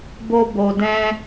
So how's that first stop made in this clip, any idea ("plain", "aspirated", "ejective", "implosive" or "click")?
plain